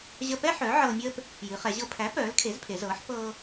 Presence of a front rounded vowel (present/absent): present